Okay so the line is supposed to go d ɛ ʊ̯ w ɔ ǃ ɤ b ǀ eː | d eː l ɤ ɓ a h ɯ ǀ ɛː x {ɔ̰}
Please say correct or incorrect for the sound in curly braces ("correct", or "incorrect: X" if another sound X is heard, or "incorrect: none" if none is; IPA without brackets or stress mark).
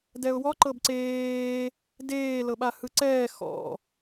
correct